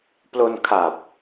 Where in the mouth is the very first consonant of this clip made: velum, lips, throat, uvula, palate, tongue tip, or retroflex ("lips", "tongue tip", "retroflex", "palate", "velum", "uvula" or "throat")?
lips